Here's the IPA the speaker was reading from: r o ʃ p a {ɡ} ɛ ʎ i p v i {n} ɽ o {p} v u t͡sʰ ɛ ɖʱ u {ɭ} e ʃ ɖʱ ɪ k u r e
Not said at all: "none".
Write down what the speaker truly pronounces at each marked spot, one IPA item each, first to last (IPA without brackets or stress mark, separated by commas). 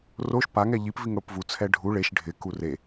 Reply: ŋ, ŋ, p, ɭ